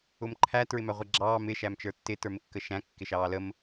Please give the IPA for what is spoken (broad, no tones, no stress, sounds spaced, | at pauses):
ʊ m ǃʰ æ t ɹ ɪ m æ ʁʷ ɛ ɡ͡ǁ ɑː m ɪ ʃ æ m t͡ʃ ə˞ tː ɪ t ə˞ m ɪ kː ə ʃ æ̃ kː ɪ ʃ ɑː l ə m